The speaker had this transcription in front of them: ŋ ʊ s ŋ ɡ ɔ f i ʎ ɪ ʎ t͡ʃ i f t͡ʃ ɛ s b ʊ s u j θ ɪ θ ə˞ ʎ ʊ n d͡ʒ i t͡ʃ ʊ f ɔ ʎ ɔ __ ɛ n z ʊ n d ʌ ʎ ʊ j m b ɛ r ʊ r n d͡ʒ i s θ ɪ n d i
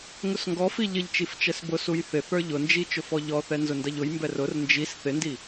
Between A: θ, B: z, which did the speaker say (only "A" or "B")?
A